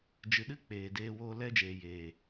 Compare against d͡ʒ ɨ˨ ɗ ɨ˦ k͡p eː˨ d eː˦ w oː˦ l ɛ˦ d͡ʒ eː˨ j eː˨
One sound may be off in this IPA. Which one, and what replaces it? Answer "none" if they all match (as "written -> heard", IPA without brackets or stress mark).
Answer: none